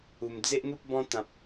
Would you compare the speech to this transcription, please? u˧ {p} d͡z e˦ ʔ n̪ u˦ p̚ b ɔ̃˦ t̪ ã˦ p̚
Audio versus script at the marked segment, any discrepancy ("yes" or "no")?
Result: yes